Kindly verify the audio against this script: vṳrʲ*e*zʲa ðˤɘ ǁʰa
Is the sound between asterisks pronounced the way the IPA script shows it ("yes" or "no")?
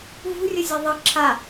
no